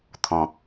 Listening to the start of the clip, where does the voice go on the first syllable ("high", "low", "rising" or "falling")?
low